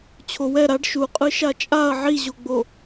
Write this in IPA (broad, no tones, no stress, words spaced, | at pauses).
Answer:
t͡ɕʰowɛ ɾaɖ ʃuqʼɯ ʃat͡ʃʼaɐ̯ ʕiʑoɡ͡bo